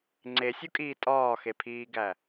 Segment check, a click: present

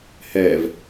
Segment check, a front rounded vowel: absent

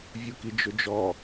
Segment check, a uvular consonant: absent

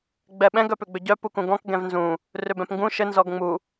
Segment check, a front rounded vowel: present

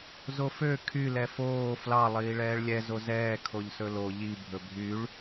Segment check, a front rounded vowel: present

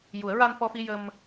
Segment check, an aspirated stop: absent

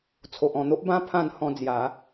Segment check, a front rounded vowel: absent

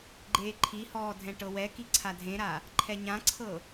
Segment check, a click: present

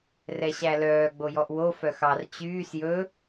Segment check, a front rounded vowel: present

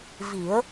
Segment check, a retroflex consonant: absent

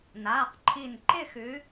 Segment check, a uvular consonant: present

